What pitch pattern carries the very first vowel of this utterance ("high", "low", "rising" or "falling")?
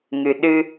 low